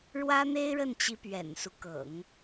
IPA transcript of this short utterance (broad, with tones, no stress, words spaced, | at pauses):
ɻwä˥n̪e˥ɪ̯ɻə˥˩nt͡ɕi˧˥ pɥɛ̰˨˩nsu˦ kɤ̰˨˩˦ŋ